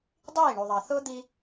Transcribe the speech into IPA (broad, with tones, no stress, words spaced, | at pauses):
dˤiː˦˨ ɳu˨ðˤɑ˨ θʊː˦ d̪i˦